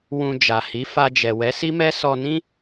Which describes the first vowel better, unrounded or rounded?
rounded